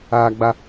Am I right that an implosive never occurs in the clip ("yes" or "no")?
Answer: yes